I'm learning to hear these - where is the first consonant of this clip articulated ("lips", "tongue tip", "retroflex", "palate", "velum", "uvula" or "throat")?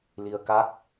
tongue tip